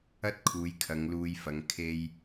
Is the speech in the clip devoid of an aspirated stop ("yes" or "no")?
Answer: no